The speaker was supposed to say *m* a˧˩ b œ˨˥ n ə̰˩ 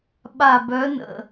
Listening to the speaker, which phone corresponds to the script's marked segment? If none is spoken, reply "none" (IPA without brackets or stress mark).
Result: ɓ